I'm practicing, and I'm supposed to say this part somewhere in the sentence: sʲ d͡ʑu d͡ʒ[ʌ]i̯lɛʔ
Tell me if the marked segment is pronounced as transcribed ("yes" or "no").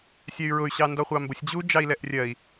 no